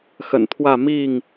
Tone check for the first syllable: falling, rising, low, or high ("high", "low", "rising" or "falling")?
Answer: low